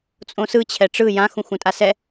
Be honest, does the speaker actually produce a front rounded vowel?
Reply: no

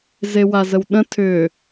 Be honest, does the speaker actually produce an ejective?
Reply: no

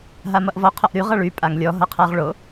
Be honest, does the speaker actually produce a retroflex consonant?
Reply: yes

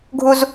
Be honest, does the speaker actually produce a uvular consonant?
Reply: no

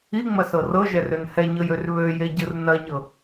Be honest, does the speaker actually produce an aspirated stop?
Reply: no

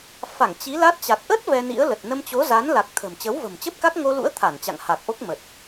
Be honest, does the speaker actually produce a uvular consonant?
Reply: no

